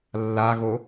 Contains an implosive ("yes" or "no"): no